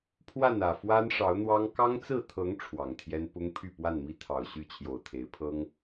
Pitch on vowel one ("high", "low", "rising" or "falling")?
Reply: falling